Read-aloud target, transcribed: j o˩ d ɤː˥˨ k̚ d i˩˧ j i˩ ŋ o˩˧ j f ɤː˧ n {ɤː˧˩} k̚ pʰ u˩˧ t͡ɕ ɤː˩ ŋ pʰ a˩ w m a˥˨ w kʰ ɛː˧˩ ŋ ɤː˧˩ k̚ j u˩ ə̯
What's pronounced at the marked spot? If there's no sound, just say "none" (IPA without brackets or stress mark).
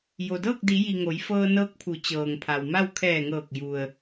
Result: ɤː˧